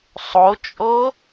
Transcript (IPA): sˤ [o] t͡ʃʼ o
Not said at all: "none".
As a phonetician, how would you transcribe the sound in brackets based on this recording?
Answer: o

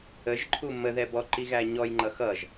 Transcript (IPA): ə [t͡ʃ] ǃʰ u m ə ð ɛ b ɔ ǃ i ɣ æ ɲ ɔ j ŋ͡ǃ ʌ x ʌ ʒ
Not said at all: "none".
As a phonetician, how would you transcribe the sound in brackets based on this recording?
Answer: ʒ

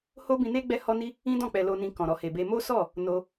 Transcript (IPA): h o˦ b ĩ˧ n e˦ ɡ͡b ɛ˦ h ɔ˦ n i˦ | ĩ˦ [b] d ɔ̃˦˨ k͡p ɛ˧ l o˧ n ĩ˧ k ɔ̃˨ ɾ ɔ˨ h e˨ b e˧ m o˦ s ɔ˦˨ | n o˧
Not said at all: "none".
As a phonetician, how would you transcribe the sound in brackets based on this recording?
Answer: none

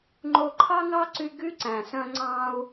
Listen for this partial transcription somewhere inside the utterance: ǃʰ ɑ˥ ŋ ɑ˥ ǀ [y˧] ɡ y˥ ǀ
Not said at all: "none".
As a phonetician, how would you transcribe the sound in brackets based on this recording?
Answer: y˧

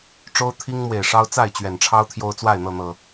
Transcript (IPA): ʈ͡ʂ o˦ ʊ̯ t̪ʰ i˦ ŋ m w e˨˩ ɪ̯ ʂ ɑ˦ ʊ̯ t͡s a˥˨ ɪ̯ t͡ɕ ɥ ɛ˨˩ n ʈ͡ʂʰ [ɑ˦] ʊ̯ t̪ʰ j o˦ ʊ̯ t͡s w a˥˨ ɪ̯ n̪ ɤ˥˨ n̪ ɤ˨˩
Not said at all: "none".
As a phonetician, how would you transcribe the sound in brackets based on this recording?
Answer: ɑ˦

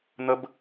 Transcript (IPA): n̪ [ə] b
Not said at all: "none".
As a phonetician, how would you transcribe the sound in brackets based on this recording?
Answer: ə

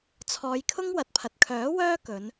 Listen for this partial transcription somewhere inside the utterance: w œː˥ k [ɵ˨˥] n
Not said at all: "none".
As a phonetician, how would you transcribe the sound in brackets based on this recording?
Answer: ɵ˨˧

